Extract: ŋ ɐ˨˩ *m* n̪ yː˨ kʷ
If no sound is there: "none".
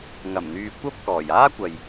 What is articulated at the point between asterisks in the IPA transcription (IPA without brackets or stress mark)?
m